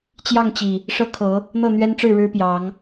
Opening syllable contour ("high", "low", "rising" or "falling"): falling